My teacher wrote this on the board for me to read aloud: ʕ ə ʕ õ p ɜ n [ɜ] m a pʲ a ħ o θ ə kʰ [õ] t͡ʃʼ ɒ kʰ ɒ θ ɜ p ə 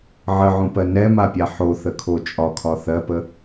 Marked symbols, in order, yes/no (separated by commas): no, no